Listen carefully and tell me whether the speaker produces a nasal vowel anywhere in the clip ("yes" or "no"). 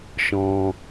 yes